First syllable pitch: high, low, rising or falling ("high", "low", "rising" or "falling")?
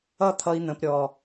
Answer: high